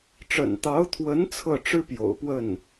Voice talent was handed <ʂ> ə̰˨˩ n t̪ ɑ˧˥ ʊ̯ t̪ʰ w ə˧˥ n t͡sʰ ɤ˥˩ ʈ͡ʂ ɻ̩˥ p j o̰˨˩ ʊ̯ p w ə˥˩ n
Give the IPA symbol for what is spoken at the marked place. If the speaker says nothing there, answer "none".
ʈ͡ʂ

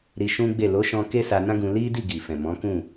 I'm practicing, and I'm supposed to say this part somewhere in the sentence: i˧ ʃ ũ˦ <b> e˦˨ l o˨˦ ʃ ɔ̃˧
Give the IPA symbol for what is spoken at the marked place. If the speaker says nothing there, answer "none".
ɡ͡b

